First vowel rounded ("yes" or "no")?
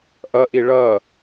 no